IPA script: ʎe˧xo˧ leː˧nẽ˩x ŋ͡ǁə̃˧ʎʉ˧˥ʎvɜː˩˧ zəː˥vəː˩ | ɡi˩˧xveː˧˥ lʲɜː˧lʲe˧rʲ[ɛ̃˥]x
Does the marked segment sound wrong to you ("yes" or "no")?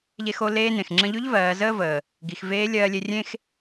yes